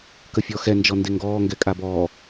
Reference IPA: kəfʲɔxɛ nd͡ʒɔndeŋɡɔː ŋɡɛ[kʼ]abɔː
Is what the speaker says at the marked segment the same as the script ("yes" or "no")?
yes